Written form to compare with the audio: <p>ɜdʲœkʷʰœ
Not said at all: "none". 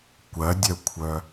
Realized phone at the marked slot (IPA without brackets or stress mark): kʷ